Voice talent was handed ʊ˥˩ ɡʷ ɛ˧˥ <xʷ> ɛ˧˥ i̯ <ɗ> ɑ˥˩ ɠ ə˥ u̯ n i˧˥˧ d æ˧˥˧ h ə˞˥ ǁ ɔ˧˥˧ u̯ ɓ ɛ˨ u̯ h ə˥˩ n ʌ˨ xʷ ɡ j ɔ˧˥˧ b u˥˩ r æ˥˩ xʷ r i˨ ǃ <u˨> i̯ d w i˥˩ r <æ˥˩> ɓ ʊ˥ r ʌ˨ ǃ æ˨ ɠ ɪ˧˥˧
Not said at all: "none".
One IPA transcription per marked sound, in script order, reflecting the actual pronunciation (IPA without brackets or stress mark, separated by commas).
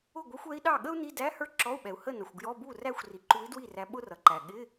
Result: xʷ, ɗ, u˧˥, æ˧˥